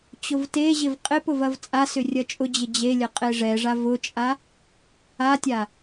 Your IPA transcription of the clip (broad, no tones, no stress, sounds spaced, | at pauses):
t͡ɕ ʊ v t e ʑ ɪ v qʼ ɪ p ʊ v ɐ v t͡sʼ a s ʏ rʲ ɐ t͡ʃʼ ʊ d͡ʑ ɪ d͡ʑ e lʲ ɐ qʼ e ʐ ɛ ʐ a v ʊ t͡ʃʼ a | a tʲ a